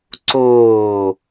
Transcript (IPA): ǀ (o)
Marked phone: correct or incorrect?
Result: incorrect